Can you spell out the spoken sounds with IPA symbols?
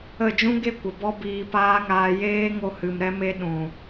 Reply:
ə˦˨ d͡ʒ ũ˦ ɡ e˦ kʷ ə˨ b ɔ˦ b iː˧ p aː˦ ŋ aː˧ j eː˦ ŋ o˧ h ɨ˨ m ɾ ɛ˧ m e˧ ɗ ũ˨

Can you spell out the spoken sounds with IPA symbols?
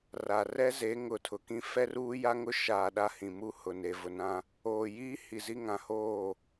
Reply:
r a˨ r ɛ˦ z e˨˦ ŋ ʊ˨ tʰ ʊ˨ k ĩ˦ f ɛ˦ r uː˦ j a˦ ŋ ʊ˦ ʃ aː˨ ɗ a˦ h ĩ˨ m u˦ h ʊ˨ n e˨ v ʊ˨ n ã˦ | oː˨ j iː˦ h i˨ z i˦ ŋ ã˨ h oː˦˨

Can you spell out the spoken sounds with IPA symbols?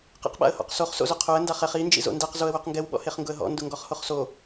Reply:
q ḭ q ɓ a̰ ə̯ h ɔ̰ q s o χ s o̰ z ʊ qʰ o ə̯ n d a χ ɛ χ i n d͡ʒ ḭ z o̰ n d ɛ q z o ə̯ w o q ŋ ɡ ɛ w ɓ ɔ̰ h e χ ŋ ɡ ʊ ə̯ ɦ ɔ̰ n d ʊ ŋ ɡ ɔ χ h o χ s o

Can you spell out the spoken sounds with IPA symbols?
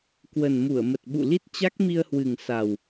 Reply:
k w ə˨˩ n m u˧˩ ə̯ m ə˨˩ t̚ ɓ ṵ˧˨ l i˦˥ t̚ t͡ɕ a˦˥ k̚ m i˧ ə̯ h w ɨ˨˩ ŋ s a˨˩ w

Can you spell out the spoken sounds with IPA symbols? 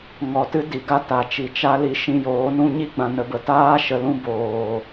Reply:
ŋ ɔ˨ t ɨ˦ d i˨ ɡ a˦ t a˨ t͡ʃ i˨ t͡ʃ a˦ l i˧ ʃ ĩ˧ j oː˨˦ n ũ˦ ɲ i˦ ɡ͡b ã˨ n ə˨ b ə˨ t aː˦ ʃ ə˧ l ũ˦ b oː˨

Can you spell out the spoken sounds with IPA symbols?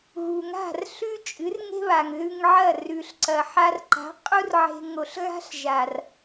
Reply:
ɣ u˨ ŋ a̤˦˨ r ɬ ʉ˦ t͡ʃʼ ɨ˨˦ r ŋ e̤˦ β a˨ ŋ ð ʉ˧ ŋ ʕ ɐ˦˨ r ʉ˨ ɬ ǀ ɐ˨ ħ a˧ r ǃ a̤˨˦ qʼ u˦ r ʕ e̤˧ ŋ o˨ ɬ ɣ a̤˦ ɬ ʒ a˨ r

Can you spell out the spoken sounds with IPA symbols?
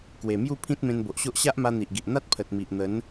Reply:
k w e˨˩ m j u˥˧ pʰ ĩ˦ t̚ m ẽ˧ n b o˨ ʔ ɕ o˦ ʔ ɕ a˦ ʔ m a˧ n̪ i˨ ʔ ɡ i˨ ʔ n̪ a˦ t̚ pʰ ə˨ t̚ m i˨ ʔ n̪ ə˨˦ n

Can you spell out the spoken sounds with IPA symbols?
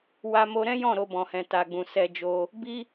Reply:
w a˧ m o˧ ɾ ɛ̃˦ j ɔ̃˦˨ ɾ o˧ b ɔ̃˨ h ɛ̃˨ t a˨ ɡ͡b ũ˨ s ɛ˧ d͡ʒ o˧ | b i˦

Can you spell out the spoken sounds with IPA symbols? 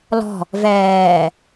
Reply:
l ɔ̤ | v ɛː

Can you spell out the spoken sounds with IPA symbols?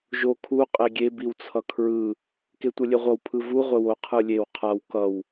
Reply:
ʒ o kʰ u qʼ e ɡʲ e b i w t͡sʰ ʌ kʰ ɹ ɯ | k e tʷ ʌ lʲ e ʁʷ ʌ w pʰ ɯ v u ʁʷ e w o qʰ ɯ lʲ e w qʰ a w k ʌ w

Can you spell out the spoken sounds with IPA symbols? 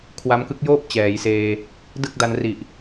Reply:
kʰ w a˦˥ m k ɯ˦˥ k̚ j oː˥˩ p̚ t͡ɕ ɛː˩˦ j s eː˧ | d ɯ˥˩ k̚ d a˧ n r i˨˩ ʔ

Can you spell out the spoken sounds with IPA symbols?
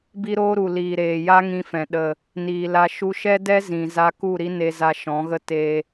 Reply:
b i˦ ɾ oː˦ ɾ u˨ l iː˨ ɾ eː˨ j aː˦ ŋ ĩ˧ f ɛ̃˨ ɗ ə˨ | n iː˨ l a˧ ʃ u˧ ʃ ɛ˦ d ɛ˦ z ĩ˨ z a˧ k u˦˨ ɾ i˦ n e˧ z a˧ ʃ ɔ̃˨˦ ɣ ə˦ t e˧

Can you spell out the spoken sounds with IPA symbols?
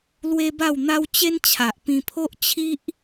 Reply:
l w e˦ b a˥˧ w n̪ a˦ w t͡ɕ e˦ n t͡ɕʰ a˨ ʔ p ĩ˧ pʰ o˦ ʔ t͡ɕʰ i˦ ʔ

